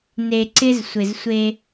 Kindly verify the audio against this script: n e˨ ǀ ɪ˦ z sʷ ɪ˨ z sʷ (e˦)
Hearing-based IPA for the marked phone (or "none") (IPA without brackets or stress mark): e˦